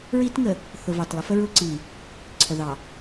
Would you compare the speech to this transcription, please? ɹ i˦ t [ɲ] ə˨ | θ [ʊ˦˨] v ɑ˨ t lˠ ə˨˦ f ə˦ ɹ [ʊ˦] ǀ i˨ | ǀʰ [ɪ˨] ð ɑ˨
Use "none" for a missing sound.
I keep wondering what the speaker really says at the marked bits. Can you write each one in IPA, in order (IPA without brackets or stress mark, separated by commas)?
ŋ, ʊ˨, ʊ˦, ə˨